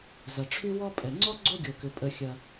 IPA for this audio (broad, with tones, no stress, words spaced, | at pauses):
zɐ˨˩ʈ͡ʂʰy˥wɔ˥ pʼɛ˨˩ŋ͡ǀɔ˥ ɡ͡ǀo˥ɡʲo˨˩kʏ˨˩ pʼə˨˩xʲɐ˨˩